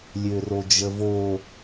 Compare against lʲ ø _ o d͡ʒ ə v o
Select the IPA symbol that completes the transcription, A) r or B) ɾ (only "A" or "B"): A